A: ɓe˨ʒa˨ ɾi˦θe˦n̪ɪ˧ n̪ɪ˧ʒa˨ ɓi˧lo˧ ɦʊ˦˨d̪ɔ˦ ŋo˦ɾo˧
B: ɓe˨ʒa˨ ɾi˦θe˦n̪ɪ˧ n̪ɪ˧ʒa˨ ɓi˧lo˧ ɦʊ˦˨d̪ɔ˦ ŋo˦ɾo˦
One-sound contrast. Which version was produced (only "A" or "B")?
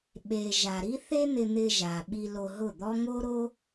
B